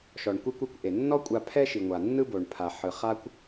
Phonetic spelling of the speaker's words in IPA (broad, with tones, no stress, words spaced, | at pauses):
ʃɔ˩ɳkʷi˧kʷ i˧kʷʔe˩ nːɔ˥kʷʼa˧ pʰɛ˥ʃi˩ŋʷa˩ nːɯ˥bo˩ɳpʰa˩ħɯ˩ χa˥kʷ